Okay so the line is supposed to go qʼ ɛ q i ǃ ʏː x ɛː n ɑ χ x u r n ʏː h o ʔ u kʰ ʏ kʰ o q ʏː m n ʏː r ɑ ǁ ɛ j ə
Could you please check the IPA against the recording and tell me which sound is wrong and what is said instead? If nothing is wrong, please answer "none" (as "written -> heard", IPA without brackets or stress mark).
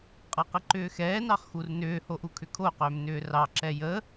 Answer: none